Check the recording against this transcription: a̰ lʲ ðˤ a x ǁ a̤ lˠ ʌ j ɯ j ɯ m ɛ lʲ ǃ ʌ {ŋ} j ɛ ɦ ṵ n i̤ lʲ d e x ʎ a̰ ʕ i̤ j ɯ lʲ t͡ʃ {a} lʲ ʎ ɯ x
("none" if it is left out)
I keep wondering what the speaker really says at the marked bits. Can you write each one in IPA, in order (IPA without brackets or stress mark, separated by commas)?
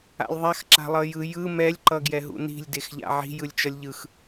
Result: ɡ, ʌ